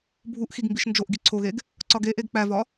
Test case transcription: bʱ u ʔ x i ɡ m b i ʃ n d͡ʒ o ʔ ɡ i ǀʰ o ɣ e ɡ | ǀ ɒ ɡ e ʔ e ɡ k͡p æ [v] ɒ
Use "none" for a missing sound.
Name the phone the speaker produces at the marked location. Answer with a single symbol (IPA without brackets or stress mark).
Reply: v